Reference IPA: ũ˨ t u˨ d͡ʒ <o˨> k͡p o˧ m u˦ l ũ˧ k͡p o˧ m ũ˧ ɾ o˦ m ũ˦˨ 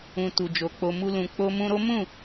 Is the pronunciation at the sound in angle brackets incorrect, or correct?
correct